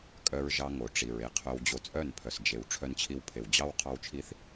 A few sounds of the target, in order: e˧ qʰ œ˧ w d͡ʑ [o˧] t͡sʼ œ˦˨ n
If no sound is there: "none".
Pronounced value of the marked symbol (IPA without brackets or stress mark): o˧